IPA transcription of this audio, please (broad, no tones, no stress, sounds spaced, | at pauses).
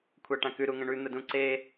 kʷʰ a ʈ ã k ʉ ɾ u ŋ ə̃ ɳ ʉ n̪ ə d ũ ǀ e